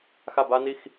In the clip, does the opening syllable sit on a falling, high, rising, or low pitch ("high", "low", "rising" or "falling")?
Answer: falling